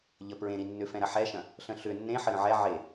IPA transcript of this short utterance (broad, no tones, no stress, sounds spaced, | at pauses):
ʎ ə p ɹ ẽ ɾ i nː ʏ f ɛ̃ ɾ ɐ ħ ɛ ʃ ɐ̃ | ɬ ə̃ ɬ ʏ nː ẽ ħ ə ɾ ə̃ ʕ ɛ ʕ e